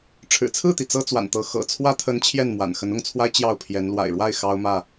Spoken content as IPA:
ʈ͡ʂʰ ɻ̩˨˩ t͡sʰ ɹ̩˥˨ t̪ i˩ t͡s ɤ˦ t͡s w a̰˨˩ n t̪ ɤ˨˦ x ɤ̰˨˩ t͡sʰ w ä˦ t̪ʰ ə˦ n t͡ɕʰ j ɛ˥˨ n m w a̰˨˩ n x ə˨˦ n ʊ˥˨ ŋ t͡sʰ w a˦ ɪ̯ t͡ɕ j ɑ˥˨ ʊ̯ pʰ j ɛ˨˦ n l w a̰˨˩ ɪ̯ ɻ w a˥˨ ɪ̯ x ɑ˦ ʊ̯ m ä˥˨

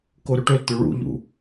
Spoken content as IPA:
k o ɾ ɵ ʈ ɵ l t̪ ɵ ɭ ṵ ʎ ṵ

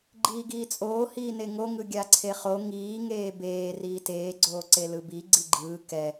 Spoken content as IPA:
ɡ͡ǃ iː ɡ iː t͡sʼ oː h iː n e ŋ o ŋ ɯ ɡʲ a ǀʰ e χ o ŋ iː ŋ eː b eː r iː t eː ɡ͡ǀ oː ǀ e l ɯ b i ɡ͡ǀ i ɡ͡ǃ ɯː k ɛ

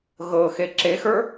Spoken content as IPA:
ɣ ɤ x e ǁ e x ə˞

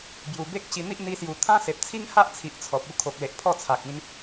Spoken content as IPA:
b j u˨˩ b e˦ k̚ ɕ i˧ n̪ i˦ ʔ n̪ i˧ s j u˨˩ t̪ʰ ã˦ s e˨ p̚ t͡sʰ i˦ ŋ h a˦ ʔ t͡sʰ i˨ ʔ t͡sʰ ɔ˨ p̚ u˧ kʰ o˨ k̚ l e˨ ʔ pʰ ɔ˥˧ t͡sʰ a˨ k̚ ĩ˧ n

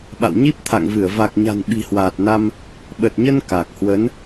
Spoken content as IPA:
ɓ a̰˧˨ w ɲ i˦˥ p̚ t̪ʰ a̰˧˨ ŋ v ɨ˧˩ ə̯ v a˨˩ k̚ ɲ a̤˨˩ n ɓ i̤˨˩ h w aː˨˩ t̚ n a˧ m | ɓ ə˨˩ t̚ ɲ ə˧ n k a˨˩ k̚ h w ə˨˦ n

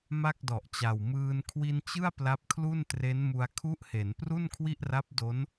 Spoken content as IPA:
m a˥˩ k̚ d ɔ˨˩ ʔ t͡ɕ a˨˩ w m ɯː˧ n kʰ w i˧ n t͡ɕ ɯ˥˩ a̯ p l a˦˥ p̚ kʰ l u˥˩ n t r e˦˥ n m u˧ a̯ kʰ u˦˥ ʔ h e˩˦ n p r u˥˩ n kʰ w i˥˩ ʔ r a˦˥ p̚ d o˦˥ n

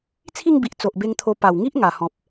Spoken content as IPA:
t͡sʰ i˥˧ ŋ b i˨ ʔ t͡s o˨ ʔ b e˧ ŋ t̪ʰ o˧ p a˨˩ w ŋ i˦ ʔ ŋ a˨˩ h ɔ̃˨ p̚

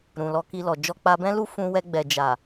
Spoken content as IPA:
ɾ ũ˨ l ɔ˧ k i˧ l ɔ˨ d͡ʒ ɔ˧ k͡p a˧ b ɛ̃˦ l u˦ f ũ˧ w ɛ˧ ɡ͡b ɛ˨ d͡ʒ a˨

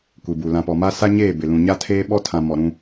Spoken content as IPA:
kʷ i˨ b u˨ l ã˨ p ɔ˨ m a˦ s a˦ ɲ eː˦˨ b ɪ˨ l ũ˨ ɲ a˦ tʰ eː˦ ɓ ɔ˦ tʰ ã˨ m ɔ˨ ɾ ũ˦

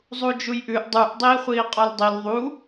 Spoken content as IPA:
zˤ u d͡ʒ u j ʔ ʉ ʔ dˤ u ʔ dˤ iː χʷ iː qʼ ɔ l dˤ i l ðˤ u

